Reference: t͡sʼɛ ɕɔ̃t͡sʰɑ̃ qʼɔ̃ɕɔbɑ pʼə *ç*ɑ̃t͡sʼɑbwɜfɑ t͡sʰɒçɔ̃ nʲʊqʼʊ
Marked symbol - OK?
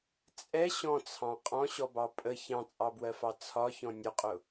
yes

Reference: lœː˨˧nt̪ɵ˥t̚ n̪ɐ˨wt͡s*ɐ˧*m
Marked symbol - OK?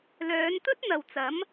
no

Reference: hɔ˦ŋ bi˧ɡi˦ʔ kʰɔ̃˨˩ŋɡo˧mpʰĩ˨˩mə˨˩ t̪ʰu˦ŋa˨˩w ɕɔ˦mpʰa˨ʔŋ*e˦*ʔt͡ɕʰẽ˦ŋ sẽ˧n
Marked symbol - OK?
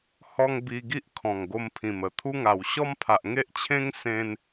yes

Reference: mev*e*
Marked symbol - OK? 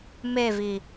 no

